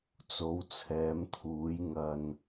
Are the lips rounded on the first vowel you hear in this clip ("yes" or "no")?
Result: yes